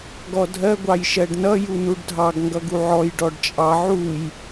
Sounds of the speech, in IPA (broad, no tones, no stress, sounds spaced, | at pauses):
ɡ ɔ dʱ ɜ ɡʷ ɑ j ʃ ɜ ɖ n ʌ j u n u ɖ dʱ ɑ ɡ ŋ ɡ ʌ ɡ u ʕ ɔ j ɖ ɔ ɖ t͡ʃʼ ɑ ʕ u j